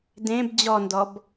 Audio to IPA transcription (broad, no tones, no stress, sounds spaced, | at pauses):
d ẽ b d͡ʑ ɔ n d ɔ b